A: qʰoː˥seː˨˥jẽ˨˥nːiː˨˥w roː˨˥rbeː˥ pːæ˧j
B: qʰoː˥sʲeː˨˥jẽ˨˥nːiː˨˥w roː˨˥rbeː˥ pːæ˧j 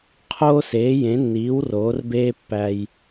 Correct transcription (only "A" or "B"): A